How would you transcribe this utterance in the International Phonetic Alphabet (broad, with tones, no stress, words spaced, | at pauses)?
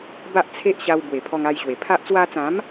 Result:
ba˦ʔt͡sʰe˦ʔɕa˧w bwe˨˩pʰɔ˧ŋ a˧jɕwe˨˩ pʰa˦ʔ t͡swa˧t͡sã˨˦m